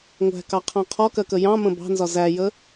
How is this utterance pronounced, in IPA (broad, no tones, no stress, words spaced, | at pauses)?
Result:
ŋʷæ̤kɑqʰɑ̃ qʰɔkɜkə jɑ̃mə̃ bɑ̤nzɒ zæjə